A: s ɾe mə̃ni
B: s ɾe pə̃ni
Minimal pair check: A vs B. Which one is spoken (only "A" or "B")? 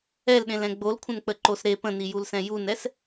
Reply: B